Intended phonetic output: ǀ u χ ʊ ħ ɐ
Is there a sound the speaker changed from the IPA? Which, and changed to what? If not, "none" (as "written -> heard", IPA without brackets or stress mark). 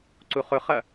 ħ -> χ